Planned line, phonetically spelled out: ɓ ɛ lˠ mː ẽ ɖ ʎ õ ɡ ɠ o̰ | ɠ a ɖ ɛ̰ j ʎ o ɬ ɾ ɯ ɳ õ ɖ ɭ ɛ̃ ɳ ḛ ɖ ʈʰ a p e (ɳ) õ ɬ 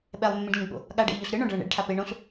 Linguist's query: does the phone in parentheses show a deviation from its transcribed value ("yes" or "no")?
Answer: no